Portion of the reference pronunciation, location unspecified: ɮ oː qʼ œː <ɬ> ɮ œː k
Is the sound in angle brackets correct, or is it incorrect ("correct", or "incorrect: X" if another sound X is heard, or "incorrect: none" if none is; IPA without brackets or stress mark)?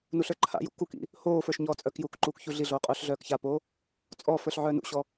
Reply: correct